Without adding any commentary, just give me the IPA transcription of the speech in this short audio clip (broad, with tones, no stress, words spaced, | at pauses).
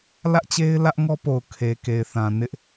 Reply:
lä˦ʔt͡ɕe˦ɪ̯ lä˦ʔŋɔ˦po˨ʊ̯ kʰe˨ke˨ɪ̯θã˨ nɪ˦ʔ